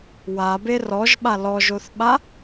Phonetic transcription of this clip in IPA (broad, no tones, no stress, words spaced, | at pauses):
wabe rɔʒɓa lɔʒoθɓa